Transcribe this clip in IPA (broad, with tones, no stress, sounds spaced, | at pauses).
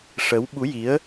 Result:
ʂ ə˧˥ w ɓ u˧˥ j i˧˥ ə̯